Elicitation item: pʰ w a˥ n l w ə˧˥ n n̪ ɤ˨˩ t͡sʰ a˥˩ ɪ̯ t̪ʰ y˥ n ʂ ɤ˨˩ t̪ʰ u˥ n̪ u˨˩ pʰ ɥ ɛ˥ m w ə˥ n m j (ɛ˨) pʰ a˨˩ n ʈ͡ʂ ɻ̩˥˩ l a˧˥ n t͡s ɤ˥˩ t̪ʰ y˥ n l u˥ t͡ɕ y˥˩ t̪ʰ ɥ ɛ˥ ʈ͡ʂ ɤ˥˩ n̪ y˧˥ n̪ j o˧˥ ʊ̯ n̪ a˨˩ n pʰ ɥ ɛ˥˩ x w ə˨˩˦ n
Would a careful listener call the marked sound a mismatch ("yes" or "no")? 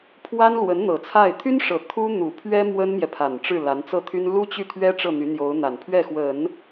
no